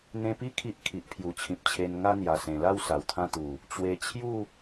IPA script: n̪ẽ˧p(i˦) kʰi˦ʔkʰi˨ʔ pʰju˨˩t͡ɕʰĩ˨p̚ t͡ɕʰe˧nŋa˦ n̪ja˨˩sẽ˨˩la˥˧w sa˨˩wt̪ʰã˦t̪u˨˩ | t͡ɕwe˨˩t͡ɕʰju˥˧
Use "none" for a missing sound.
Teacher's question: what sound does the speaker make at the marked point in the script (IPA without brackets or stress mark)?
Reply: i˦